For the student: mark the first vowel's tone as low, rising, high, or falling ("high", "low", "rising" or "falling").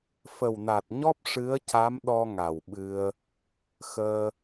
low